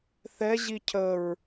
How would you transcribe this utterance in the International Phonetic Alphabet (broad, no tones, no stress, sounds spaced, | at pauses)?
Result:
θ ɛ ʑ i cʰ ə ɹ